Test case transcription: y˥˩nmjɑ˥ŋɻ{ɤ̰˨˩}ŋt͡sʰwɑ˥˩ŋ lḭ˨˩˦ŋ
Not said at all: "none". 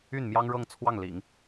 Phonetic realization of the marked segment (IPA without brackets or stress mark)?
ɤ˥˧